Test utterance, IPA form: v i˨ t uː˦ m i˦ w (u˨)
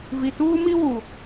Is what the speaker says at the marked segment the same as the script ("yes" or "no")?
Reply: yes